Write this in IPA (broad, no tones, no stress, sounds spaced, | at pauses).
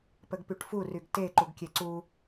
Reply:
p ə ɡ p y ʈ f u r y ɡ t e ǃ u ɡ kʲ e ǀ u